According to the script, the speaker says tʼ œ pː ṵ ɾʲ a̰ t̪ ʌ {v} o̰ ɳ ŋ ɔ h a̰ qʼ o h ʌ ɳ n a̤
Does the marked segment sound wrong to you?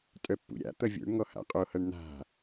yes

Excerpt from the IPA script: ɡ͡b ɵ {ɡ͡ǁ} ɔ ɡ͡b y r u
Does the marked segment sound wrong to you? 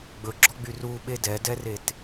no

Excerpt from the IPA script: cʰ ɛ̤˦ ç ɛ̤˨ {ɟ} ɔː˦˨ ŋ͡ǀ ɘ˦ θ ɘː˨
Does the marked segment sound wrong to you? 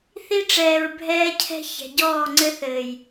no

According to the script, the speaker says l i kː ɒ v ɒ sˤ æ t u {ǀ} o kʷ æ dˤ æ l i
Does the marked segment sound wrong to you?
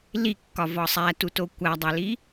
yes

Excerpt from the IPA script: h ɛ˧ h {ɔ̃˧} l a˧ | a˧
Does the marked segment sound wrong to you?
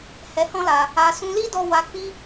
yes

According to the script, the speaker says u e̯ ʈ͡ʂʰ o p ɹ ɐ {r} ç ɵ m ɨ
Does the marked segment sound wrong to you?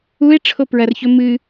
no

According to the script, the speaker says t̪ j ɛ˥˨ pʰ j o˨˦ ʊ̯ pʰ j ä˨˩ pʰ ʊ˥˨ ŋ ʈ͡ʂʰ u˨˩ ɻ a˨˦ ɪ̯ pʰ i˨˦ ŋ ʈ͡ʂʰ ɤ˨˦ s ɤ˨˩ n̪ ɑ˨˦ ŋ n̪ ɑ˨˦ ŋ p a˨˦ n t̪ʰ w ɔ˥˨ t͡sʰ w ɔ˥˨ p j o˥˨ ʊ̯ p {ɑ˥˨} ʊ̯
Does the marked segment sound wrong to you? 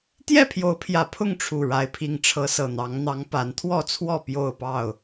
no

